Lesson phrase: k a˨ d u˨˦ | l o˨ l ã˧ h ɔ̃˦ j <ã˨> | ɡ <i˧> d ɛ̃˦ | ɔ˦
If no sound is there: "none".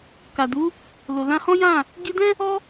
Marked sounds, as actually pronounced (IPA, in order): ã˦˨, i˧

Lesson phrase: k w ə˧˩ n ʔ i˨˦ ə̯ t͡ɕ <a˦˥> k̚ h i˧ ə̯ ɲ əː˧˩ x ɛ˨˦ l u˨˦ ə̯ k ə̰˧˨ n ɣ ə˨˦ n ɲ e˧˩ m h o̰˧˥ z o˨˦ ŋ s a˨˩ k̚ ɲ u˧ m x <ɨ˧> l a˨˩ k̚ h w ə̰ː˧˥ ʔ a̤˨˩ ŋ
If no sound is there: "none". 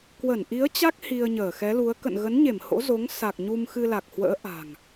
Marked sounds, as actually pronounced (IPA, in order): a˦˥, ɨ˧

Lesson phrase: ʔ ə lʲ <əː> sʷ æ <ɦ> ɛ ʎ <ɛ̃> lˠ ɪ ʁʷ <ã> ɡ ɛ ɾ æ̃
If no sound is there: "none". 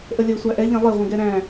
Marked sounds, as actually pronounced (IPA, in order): əː, ʔ, ɛ̃, ə̃

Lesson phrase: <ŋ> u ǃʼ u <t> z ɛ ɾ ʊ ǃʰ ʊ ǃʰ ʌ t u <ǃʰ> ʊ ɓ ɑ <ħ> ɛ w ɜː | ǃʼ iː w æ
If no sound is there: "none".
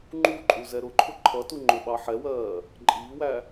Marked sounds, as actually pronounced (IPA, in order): ŋ͡ǃ, none, ŋ͡ǃ, ħ

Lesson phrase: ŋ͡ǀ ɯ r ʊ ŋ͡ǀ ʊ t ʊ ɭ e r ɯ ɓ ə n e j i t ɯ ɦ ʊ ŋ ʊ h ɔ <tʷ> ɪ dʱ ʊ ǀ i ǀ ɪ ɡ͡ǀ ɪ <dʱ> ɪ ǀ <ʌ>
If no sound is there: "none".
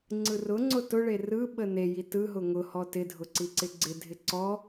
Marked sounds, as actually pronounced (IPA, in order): t, dʱ, ɔ

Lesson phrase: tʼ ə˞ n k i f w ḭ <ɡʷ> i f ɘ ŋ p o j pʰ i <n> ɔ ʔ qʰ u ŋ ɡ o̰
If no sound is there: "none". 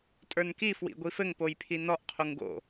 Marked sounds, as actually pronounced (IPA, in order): ɡʷ, n

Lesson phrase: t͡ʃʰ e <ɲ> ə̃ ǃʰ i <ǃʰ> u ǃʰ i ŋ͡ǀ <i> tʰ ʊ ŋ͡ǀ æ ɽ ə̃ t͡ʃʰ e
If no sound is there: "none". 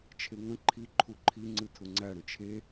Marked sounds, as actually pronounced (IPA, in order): ŋ, ǃʰ, ɨ

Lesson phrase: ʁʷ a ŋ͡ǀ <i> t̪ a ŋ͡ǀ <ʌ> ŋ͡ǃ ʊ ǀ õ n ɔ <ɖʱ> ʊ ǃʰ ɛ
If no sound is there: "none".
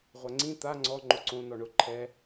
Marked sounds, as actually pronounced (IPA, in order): ĩ, ɔ, ɳ

